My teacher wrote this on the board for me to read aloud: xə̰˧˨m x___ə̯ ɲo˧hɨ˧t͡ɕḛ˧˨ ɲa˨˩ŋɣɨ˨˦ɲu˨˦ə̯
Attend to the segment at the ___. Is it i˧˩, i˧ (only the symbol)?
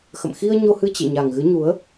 i˧